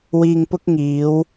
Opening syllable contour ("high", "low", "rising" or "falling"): low